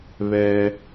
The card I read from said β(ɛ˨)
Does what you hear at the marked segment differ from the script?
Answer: yes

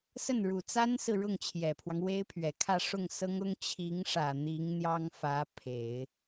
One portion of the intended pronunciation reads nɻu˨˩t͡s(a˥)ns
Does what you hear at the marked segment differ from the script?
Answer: no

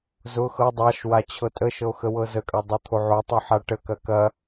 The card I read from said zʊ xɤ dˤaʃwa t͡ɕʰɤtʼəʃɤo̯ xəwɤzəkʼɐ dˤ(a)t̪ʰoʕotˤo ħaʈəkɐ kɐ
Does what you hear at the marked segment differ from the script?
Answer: no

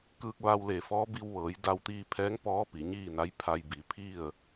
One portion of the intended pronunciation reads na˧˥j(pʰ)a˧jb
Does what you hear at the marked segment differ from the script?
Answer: no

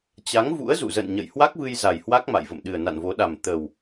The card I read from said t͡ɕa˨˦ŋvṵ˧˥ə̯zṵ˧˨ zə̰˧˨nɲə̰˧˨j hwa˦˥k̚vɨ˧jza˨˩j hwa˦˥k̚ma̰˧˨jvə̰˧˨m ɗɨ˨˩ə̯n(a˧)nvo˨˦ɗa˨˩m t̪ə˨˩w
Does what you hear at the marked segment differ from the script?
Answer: yes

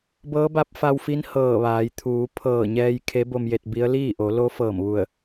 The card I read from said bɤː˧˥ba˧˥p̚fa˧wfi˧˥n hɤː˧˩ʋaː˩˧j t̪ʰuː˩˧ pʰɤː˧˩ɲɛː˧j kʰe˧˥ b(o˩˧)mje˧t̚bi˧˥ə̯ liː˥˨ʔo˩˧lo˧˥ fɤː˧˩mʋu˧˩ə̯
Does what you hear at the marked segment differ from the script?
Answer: yes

